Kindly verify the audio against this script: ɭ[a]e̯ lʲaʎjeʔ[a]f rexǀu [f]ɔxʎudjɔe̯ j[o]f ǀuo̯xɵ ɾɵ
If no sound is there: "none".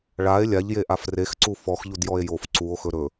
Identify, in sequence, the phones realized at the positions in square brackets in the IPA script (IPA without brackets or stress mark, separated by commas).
a, a, f, o